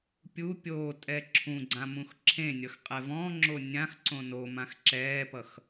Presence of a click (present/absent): present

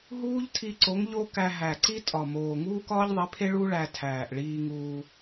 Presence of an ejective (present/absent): present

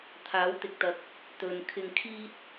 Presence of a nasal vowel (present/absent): absent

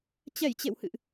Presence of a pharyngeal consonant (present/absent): absent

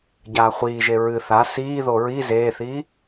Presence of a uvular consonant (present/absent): present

